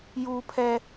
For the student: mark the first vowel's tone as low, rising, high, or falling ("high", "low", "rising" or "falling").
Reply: high